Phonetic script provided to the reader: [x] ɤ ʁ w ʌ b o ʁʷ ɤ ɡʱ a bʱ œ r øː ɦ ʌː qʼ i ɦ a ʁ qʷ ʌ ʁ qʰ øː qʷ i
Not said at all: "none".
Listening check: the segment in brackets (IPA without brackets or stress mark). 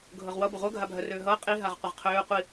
ɡʱ